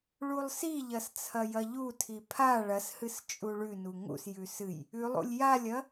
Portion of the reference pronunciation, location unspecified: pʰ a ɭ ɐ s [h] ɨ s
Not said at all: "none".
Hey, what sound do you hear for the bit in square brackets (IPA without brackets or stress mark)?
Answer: h